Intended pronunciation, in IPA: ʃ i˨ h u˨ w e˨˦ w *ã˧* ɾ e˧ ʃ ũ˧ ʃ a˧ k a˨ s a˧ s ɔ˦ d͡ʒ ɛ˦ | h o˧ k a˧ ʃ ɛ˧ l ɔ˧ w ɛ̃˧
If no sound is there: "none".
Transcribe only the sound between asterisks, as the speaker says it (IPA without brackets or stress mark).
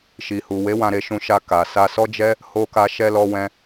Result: ã˧